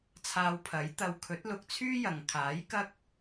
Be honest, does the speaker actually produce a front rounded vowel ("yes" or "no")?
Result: yes